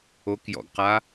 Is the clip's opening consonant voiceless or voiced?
voiceless